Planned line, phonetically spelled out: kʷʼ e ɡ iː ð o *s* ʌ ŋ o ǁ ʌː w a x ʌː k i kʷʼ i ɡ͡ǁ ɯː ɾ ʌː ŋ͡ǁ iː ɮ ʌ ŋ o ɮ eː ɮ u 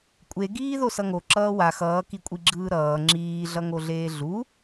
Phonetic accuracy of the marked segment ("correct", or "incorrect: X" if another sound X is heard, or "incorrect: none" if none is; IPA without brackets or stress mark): correct